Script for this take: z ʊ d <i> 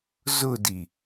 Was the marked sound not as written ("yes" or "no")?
no